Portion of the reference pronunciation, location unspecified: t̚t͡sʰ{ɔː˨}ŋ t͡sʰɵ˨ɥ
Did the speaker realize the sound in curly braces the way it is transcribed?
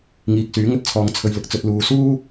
yes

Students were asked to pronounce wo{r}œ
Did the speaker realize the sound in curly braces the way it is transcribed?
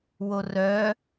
yes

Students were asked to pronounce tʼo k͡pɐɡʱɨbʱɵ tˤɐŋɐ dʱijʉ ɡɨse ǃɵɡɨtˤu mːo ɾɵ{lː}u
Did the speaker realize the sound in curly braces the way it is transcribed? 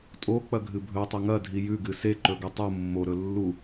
yes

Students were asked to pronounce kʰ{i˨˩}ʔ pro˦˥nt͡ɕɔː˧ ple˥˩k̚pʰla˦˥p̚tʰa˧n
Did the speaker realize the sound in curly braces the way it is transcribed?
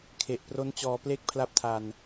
no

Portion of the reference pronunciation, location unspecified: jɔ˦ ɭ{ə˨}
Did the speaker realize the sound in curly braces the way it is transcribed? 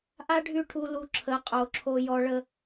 no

